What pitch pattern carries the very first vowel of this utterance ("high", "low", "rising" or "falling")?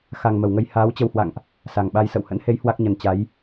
low